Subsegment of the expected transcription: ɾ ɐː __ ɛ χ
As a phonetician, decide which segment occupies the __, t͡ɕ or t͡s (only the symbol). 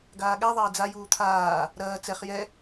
t͡s